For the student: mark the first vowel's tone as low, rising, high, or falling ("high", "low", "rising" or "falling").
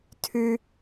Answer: high